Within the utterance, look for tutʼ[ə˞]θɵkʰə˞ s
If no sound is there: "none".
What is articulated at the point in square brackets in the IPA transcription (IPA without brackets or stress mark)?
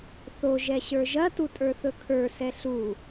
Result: ə˞